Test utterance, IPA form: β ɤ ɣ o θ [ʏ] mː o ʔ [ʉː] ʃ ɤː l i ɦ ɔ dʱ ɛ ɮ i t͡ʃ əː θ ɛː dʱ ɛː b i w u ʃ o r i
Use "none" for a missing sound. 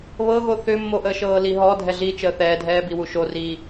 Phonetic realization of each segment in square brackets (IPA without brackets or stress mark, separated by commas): ʏ, əː